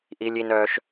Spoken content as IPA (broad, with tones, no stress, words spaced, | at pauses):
ʔi˦lʲi˦nœː˦ʃ